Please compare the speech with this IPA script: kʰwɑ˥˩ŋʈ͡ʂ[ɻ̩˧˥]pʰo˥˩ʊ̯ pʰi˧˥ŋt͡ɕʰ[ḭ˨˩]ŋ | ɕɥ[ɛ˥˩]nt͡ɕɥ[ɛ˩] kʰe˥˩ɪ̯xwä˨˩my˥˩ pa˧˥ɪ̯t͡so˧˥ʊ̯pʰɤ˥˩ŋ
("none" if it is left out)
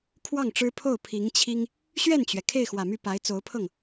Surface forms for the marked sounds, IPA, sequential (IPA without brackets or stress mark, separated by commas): ɻ̩˥, i˥, ɛ˥˩, ɛ˩